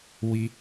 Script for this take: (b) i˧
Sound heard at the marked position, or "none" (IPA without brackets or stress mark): w